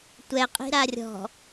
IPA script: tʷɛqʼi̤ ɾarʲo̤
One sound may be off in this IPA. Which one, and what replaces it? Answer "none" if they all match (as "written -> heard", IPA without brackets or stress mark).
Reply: o̤ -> ɔ̤